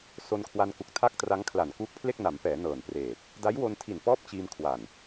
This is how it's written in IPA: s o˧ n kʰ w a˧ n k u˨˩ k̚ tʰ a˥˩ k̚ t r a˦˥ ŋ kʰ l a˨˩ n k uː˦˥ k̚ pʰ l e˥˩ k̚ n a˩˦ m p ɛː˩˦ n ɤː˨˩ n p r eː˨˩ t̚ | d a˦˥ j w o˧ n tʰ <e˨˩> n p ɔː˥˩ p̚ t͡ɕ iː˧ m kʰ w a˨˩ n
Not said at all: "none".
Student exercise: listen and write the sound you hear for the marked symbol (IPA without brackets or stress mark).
i˨˩